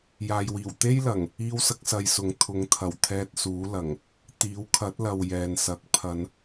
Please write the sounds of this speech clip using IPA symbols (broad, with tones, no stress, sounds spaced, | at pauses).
j aː˨ j w iː˨˩ w t̪ e˥ j l ɐ˨˩ ŋ | iː˥ w s ɐ˥ k̚ s ɐ˧ j s ʊ˨˥ ŋ t̪ʰ ʊ˨˥ ŋ t̪ʰ ɐ˨˩ w t̪ʰ ɛː˧ t̚ s uː˨˥ l ɐ˨˩ ŋ | t̪ iː˨˥ w kʰ ɐ˨˥ t̚ l ɐ˨ w j ɛː˨ n s ɐ˨˥ k̚ pʰ ɐ˨˧ n